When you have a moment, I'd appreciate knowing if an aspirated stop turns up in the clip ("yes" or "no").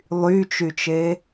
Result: no